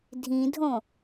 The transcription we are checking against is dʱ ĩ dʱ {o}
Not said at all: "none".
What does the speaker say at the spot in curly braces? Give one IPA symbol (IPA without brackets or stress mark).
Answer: õ